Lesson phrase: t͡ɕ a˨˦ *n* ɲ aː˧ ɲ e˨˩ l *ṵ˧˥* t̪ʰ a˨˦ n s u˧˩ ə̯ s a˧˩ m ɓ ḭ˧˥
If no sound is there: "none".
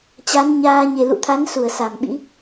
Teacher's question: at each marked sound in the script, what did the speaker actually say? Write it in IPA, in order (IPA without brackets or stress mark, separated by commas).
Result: n, ṵ˧˨